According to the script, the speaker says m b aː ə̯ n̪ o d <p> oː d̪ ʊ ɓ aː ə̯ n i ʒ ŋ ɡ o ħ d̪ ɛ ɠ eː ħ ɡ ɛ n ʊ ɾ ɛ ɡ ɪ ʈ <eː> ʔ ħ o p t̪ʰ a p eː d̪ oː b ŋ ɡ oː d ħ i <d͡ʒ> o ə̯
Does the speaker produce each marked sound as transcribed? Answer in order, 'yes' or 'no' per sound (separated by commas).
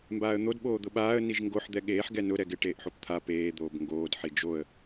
no, yes, yes